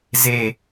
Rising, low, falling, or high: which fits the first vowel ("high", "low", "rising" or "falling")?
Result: low